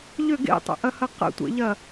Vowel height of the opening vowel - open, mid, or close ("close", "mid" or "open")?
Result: close